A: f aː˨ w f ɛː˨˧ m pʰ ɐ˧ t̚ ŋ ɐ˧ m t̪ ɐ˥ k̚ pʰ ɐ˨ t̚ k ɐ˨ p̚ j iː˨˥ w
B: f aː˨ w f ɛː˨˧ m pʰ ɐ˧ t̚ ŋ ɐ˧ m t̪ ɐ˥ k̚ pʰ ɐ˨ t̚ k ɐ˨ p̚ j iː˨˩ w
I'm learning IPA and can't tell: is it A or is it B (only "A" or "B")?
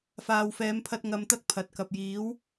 A